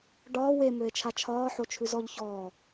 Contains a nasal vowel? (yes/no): no